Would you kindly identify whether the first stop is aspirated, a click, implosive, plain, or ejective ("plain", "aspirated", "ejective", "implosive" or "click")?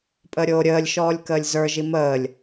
ejective